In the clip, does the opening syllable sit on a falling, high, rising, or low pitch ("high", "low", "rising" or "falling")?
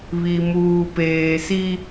low